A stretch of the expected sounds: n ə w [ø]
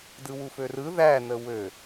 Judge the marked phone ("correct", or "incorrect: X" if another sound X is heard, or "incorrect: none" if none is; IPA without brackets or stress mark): correct